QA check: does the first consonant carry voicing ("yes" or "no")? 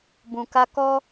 yes